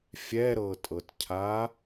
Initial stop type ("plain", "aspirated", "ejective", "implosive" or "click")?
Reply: ejective